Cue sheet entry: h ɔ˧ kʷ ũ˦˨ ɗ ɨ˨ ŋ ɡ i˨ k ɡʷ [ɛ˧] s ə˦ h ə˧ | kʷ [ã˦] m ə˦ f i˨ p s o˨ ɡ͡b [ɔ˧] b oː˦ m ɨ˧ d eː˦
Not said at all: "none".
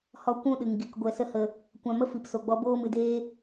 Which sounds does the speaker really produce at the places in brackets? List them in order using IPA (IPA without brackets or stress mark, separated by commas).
ɛ˧, ã˧, ɔ˧